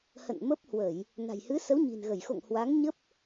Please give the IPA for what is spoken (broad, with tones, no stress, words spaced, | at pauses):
hə̰˧˨n mə˦˥p̚ hwə˧˩˨j | na̤˨˩jhɨ˨˦sə˨˦w ɲi̤˨˩nɣə˧˩j xo̰˧˨ŋ hwa˨˦ŋɲə˦˥p̚